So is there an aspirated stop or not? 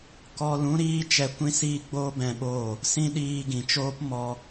no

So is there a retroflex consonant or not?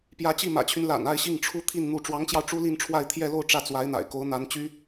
yes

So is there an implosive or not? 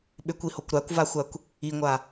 yes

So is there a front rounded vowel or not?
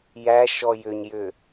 yes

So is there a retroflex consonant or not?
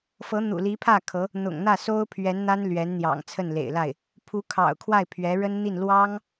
yes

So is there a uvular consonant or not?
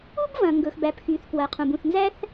yes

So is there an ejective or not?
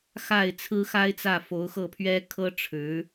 no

